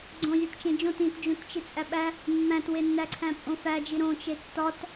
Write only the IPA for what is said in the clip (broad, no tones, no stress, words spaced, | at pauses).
ɡ͡ǀõ zʲɒtt͡ʃẽd͡ʒõt ĩtd͡ʒũtt͡ʃi t͡sʼæɓæ | mːæ̃twenːæǀʰæ̃ pʼõfæd͡ʒi ɾõt͡ʃe tːɒt